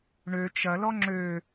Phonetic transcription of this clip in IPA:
ɳø t͡ʃɐlɔ ŋ͡ǁø

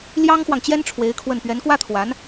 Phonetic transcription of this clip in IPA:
ljɑ˥ŋxwɑ˨ŋt͡ɕjɛ˥n ʈ͡ʂʰwe˧˥ɪ̯kʰwə˥˩n pɥɛ˧˥nkwä˥t̪ʰwa˧˥n

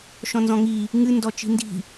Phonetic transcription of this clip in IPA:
ʃɔ̃nzɔ̃ŋi | ŋɨ ndɔt͡ʃi̤ndi̤

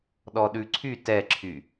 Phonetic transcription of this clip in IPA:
ɗɔɗʉǀʰy tɛǁʰy

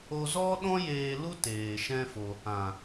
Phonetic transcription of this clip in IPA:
o˧zɔ˦ɗɔ̃˦ jeː˧lu˦ teː˨ʃɛ̃˦fo˧ | ã˨

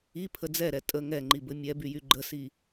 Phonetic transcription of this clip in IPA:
ipʰə d͡zɛɾɛ tʼə ŋɛŋ͡ǃibɘ mʲɛbyjy ɡ͡ǃəsi

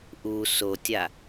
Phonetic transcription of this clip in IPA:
ʔu sotʲa

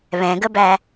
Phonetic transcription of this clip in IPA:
βɛ̃ɡəbæ

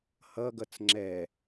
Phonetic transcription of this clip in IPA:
hʌɡʌt͡s ŋ͡ǁɛ

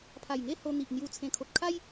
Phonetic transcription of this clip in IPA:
pʰa˨˩jŋe˦ho˧ n̪i˨ʔ n̪ju˧ t͡sʰẽ˨˩kʰo˨t̚kʰa˦j

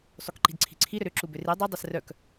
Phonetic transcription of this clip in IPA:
sˤukǃi̤dǀʰi̤ǀʰi ɾʏɾʏ ǁubʏri dˤʉ dˤɛsrœk

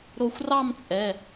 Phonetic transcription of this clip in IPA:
ɾo˧xʷrɑ˥˧m t͡sʼɛ˩˧˩

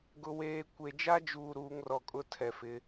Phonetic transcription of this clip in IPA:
ɡʊ˨weː˨ kʷe˨d͡ʒa˦d͡ʒuː˨ ɾuː˨˦ŋrɔ˨kʼʊ˦ tʰɛ˨fɪ˨˦

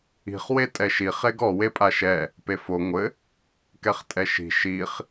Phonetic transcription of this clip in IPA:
i̤χ wetʼɛʃi χeɡɔ wepʼaʃɛ | pefo ŋʷɘ | kɛχtʼɛʃi̤ ʃiχ

